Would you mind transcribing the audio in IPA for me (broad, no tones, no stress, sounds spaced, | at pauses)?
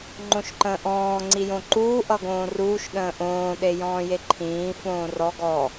ŋ͡ǃ õ ʃ ǃ ə̃ː ʔ ɔ̃ː ŋ͡ǀ i j õ ǃ uː ʔ ʌ ɡ õː r uː ʃ ɗ ə̃ː ʔ õː ɗ e j ɔ̃ː j e ǃʰ ĩː f õː r ɔ ɡ ɔ